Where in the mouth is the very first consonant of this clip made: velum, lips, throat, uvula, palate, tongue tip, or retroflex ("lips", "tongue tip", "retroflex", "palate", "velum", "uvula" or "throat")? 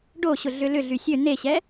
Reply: retroflex